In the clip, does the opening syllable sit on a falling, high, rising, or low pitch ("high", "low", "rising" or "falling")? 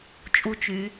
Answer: high